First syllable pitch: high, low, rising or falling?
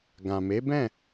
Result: low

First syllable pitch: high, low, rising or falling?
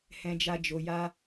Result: high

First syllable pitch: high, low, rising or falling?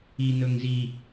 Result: low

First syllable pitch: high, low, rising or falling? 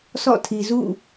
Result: falling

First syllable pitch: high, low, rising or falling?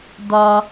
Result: low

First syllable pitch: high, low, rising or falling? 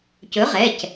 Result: rising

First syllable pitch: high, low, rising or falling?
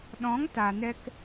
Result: rising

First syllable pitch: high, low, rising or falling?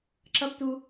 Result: rising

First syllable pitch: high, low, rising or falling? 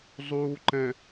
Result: low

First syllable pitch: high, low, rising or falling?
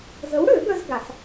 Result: rising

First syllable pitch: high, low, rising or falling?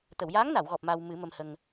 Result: low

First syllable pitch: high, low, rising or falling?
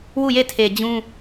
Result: falling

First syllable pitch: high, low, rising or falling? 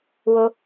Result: high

